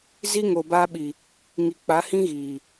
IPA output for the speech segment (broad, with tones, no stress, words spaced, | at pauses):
zi˦ŋo˨ baː˦ɓi˨ | ŋi˨k͡pa˨˦hĩ˦ ɣiː˨